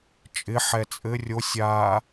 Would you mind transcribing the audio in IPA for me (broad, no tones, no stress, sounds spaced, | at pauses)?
t͡ʃʼ ɪ ħ ɛ t͡sʼ ɘ rʲ o sʲ a